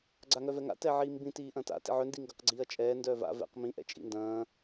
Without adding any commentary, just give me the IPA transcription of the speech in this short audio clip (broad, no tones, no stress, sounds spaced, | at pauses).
ɡ͡ǀ a ŋ œ v ɛ ŋ a̰ t ɛ ʕ iː m b ĩ t iː ʔ ɐ̃ t a̰ t ḭ ʕ œ n d i ŋ ɡ ɐ q ɡ͡ǀ iː ɐ̯ t͡ʃʼ ɛː n d œ v a̰ v ɛ̰ q m ĩ ʔ ɛ̰ t͡ʃʼ ḭ n d ɐ̃ː